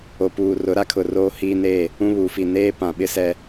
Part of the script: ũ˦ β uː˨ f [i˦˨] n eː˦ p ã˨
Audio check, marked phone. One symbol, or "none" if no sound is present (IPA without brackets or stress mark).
i˦˨